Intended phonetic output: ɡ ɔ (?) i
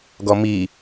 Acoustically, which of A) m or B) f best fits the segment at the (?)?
A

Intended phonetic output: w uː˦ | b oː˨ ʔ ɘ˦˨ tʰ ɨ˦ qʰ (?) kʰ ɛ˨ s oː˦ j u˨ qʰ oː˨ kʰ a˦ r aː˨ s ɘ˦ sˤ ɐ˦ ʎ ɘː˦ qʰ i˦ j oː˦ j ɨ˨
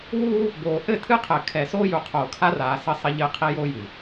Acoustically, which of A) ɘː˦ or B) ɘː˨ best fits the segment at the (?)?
B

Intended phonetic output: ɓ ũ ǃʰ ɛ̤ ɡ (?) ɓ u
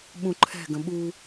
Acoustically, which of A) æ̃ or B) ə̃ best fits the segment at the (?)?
B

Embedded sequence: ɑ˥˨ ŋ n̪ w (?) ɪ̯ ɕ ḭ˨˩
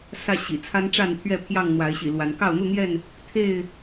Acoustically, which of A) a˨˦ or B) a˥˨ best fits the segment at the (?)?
A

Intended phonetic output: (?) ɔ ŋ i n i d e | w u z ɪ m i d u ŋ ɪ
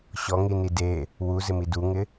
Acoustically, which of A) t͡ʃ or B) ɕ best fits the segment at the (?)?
B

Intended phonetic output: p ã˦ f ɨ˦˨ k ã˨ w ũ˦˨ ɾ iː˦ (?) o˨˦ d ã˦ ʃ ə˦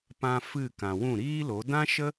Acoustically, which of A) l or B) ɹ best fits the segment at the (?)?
A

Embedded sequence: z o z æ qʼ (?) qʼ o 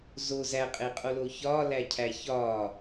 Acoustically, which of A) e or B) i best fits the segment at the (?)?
A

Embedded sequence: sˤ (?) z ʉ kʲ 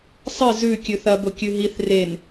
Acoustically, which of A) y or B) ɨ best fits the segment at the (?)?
B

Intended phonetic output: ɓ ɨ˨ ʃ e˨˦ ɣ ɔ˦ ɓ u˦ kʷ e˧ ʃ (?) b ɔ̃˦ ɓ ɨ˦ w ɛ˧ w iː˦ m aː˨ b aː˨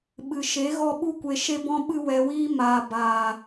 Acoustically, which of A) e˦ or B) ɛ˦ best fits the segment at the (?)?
A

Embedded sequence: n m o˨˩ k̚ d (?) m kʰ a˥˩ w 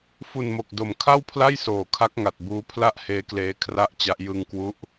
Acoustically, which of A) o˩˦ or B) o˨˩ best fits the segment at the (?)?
B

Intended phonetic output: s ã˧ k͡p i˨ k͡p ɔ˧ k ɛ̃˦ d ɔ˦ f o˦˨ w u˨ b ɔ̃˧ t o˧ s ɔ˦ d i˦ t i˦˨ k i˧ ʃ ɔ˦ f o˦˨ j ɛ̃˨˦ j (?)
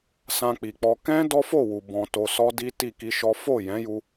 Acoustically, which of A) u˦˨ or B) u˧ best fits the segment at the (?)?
B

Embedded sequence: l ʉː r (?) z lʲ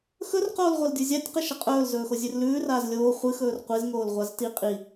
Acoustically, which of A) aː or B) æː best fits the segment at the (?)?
A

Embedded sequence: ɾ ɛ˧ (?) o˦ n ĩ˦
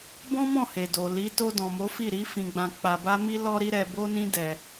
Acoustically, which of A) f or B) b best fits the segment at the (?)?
B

